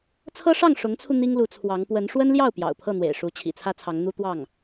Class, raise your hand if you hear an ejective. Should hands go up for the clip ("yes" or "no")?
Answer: no